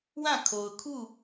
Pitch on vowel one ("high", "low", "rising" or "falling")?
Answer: falling